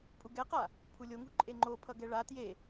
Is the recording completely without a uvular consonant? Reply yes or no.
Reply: no